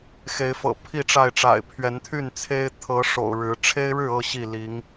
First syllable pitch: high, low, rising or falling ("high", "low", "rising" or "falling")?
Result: rising